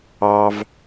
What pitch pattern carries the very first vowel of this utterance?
high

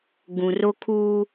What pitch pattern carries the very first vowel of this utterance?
low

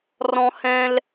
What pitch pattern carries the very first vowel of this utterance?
high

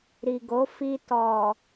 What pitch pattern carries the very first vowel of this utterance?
low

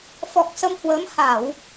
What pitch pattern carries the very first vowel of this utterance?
low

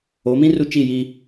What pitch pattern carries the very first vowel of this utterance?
rising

